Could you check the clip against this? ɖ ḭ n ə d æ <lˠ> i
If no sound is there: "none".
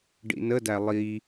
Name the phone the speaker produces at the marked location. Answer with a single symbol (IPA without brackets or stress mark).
lˠ